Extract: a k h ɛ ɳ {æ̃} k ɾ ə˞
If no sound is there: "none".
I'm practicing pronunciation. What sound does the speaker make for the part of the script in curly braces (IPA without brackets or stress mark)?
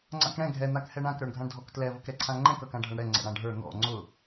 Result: ã